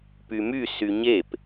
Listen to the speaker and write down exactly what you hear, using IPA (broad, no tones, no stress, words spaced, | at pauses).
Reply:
pymy syɲep